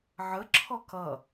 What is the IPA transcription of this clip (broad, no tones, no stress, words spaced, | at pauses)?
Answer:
ʕə ǁʰɔkʌ